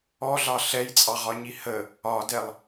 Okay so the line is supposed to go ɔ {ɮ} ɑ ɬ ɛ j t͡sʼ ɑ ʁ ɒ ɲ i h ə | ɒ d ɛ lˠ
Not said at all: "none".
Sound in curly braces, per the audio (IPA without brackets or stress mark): ɮ